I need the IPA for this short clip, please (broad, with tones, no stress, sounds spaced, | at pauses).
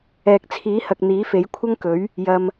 ɛː˨ k̚ t͡sʰ iː˨˥ h ɐ˨ k̚ n̪ iː˨˥ f e˨˥ j kʷʰ ɐ˥ ŋ k ɵ˨˥ ɥ | j ɐ˧ m